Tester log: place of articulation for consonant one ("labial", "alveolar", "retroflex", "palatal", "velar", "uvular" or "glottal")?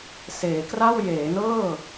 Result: alveolar